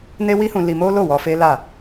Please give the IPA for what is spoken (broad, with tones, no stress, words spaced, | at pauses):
ne˦wi˦hũ˧ li˧ mo˦lo˦˨wɔ˧ fe˦la˦˨